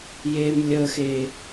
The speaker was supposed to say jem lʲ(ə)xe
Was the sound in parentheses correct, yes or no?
yes